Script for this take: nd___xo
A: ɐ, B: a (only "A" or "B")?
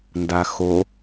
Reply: B